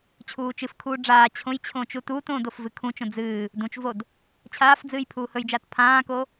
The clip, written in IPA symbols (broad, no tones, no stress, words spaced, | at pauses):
t͡ɕʰuːt͡ʃɨfkʰuː ɖ͡ʐaː t͡ɕʰõjt͡ɕʰõːt͡ʃ utuːtõːd ofvɨkʰũt͡ʃõ d͡zɨː | dũt͡ʃvod | t͡ɕʰaːfd͡zɨːj pʰuːhɵjd͡ʒaːt pʰãːko